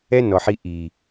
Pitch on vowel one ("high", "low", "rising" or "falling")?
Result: high